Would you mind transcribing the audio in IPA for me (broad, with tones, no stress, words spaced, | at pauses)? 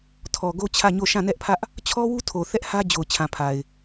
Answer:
tʰɔ˨ɡo˦t͡ɕʰä˦˨ɲo˦˨ ʃã˦˨nɛ˦ʔpʰä˦ʔ | t͡ɕʰɔ˦wu˦tʰo˨ θɛ˦ʔhä˦d͡ʑo˨ʊ̯ t͡ɕʰã˨pʰa˨ɪ̯